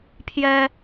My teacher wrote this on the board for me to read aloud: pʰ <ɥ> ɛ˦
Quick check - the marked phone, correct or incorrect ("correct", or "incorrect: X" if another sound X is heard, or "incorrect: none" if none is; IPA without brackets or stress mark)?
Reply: incorrect: j